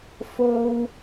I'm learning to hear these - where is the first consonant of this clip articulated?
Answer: lips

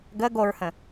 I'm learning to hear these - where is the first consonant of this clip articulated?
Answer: velum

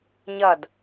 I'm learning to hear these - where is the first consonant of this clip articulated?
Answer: palate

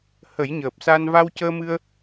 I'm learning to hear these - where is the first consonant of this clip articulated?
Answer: throat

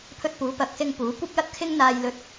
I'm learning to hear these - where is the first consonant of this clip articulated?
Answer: lips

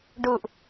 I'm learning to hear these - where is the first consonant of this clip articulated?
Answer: retroflex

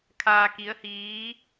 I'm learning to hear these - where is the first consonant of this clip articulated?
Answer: velum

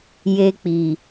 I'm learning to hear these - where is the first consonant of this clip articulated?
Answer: palate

